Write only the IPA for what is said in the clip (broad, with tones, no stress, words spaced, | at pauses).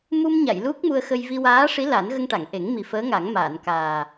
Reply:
mu˧mɲa˨˩˨j lu˦˥k̚mu˧ə̯xə˧j vi˧waː˧˥ʂi˧˥ la˨˩˦nɣə˧ŋ ʈa˨˩˨ŋʔe˨˩˦ŋ mi˨˩fəː˧˥ŋa˨˩˦ŋ maː˨˩˨n kaː˨˩